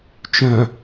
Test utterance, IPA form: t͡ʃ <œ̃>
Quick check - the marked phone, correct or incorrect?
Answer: correct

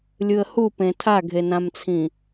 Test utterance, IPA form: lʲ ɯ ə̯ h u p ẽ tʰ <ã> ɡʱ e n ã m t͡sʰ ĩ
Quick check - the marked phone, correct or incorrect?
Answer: incorrect: a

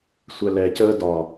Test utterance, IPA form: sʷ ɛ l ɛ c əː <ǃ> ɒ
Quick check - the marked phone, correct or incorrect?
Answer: incorrect: d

